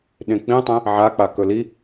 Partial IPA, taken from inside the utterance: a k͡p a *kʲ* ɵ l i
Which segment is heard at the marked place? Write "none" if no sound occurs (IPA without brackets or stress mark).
k